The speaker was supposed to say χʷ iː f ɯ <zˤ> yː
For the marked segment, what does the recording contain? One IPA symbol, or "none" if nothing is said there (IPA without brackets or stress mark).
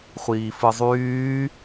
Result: zˤ